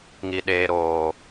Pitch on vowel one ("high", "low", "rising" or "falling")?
low